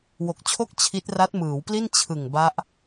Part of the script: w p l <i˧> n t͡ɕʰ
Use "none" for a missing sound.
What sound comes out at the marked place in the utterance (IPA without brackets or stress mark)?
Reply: i˥˩